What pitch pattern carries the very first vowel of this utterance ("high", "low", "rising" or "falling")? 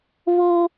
high